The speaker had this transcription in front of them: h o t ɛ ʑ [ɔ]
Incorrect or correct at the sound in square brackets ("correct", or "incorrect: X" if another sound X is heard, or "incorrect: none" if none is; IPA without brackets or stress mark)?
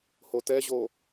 incorrect: o